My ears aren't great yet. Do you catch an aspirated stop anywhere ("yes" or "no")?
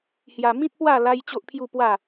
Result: yes